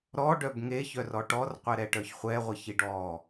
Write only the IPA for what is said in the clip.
ɾɔɖœb ŋeçœrɔ ʈɔrqʷɛɾɛʈœç χʷɛʁʷɛçiɖ ɔ

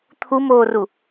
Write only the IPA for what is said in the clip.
t̪ʰumoːru

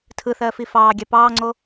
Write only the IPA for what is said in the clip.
tʰɯθɜːfi fɑːɡʲɑ pɑːŋ͡ǀo

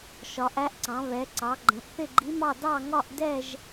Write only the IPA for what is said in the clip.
ʃɒ˩˧ʔæ˧˥ʔǀɑ̃˩˧ βɛ˩˧ ǀɑ˩˧ɡ͡ǃə̃˩˧ʔ θɪ˥˧ɡ͡ǃi˧˥mɑ˥˧ dɑ˥˧ ŋɒ˥˧ʔ dɛ˥˧ʒ

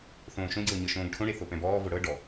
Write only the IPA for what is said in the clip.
θõːʃõɟɤː ɲɤʃõːɡʈʰõɽe θopɛ̃bɔːvo ɽɤ ɖɔ

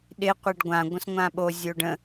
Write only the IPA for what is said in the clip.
ɗɪ qʷeɖɡʷã ɡʷə̃sŋʷãɓo zʲoːɖə̃

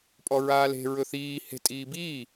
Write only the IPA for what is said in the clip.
pʼɔɹaːle̤ ɹɵθiː he̤ tʼiːbiː

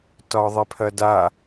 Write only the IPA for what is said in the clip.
tɒðˤepʰɐda

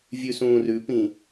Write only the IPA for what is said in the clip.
vʲʉsũːrʉpĩ

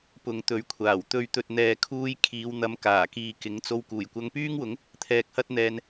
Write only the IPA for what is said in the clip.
pʊ˨˧ŋt̪ɵ˨˥ɥkʷʰaː˨˩w t̪ɵ˨˧ɥt̪ɵ˨t̚ n̪ɛː˨kʰuː˧j kʰiː˨˧w n̪ɐ˨˧m kaː˨˩kiː˨kɪ˨˥ŋt͡so˧w kuː˨˩jkʷɐ˧ŋpyː˥ŋwʊ˨˥ŋ | t̪ʰɛː˧k̚hɐ˥t̚n̪ɛː˧n

